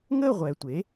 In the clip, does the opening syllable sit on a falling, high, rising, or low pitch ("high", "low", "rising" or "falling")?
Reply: falling